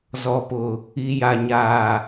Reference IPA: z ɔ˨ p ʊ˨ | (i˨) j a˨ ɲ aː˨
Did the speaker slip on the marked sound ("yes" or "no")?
no